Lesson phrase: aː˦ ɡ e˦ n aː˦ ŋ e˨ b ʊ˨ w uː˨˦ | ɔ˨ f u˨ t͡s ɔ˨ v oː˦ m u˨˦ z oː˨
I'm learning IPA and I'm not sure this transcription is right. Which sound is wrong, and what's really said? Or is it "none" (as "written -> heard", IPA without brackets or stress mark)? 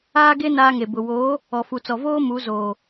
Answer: uː˨˦ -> oː˨˦